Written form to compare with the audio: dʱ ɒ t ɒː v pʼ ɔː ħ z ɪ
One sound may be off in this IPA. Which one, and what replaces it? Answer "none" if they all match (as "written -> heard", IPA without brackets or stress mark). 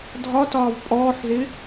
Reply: none